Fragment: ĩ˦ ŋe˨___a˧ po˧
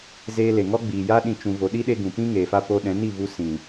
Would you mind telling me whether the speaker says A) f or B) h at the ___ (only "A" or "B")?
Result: A